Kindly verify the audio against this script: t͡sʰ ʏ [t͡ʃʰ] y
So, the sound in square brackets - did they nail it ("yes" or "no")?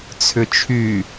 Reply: yes